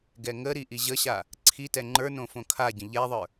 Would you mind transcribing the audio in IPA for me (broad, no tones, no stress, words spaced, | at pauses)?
ɡɛŋəɾi ʔiʑəɕa | ǀʰitɛ ŋ͡ǃə˞ nõfõkʰaɟə̃ ʎɛðˤə˞